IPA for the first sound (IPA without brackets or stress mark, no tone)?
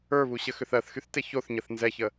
ə˞